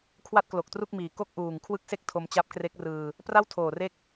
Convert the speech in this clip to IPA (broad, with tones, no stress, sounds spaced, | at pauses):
kʰ w a˥˩ t̚ k l o˨˩ k̚ t r u˥˩ k̚ m iː˩˦ k o˥˩ k̚ ʔ uː˨˩ ŋ kʰ w ɯ˥˩ k̚ s e˥˩ k̚ tʰ o˧ m t͡ɕ a˦˥ p̚ k r e˦˥ k̚ r ɯː˧ | p r a˥˩ w tʰ oː˨˩ r e˦˥ k̚